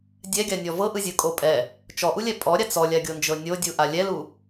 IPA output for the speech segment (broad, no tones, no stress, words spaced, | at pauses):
dʲɛɡʲanʲɔ vɤʔɯzʲɯkʼo pʼɛ | t͡ʃɔʔulʲɛ pʼɔɾʲa t͡sɔlʲaɡʲond͡ʒɤ nʲodʲuʔa lʲɛlu